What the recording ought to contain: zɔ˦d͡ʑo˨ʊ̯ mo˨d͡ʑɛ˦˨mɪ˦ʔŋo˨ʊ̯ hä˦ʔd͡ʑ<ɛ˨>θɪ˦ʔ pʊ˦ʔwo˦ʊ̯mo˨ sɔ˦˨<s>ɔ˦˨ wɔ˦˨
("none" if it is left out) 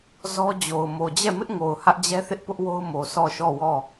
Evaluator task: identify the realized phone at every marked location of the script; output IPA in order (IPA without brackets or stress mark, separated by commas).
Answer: ɛ˦, ʃ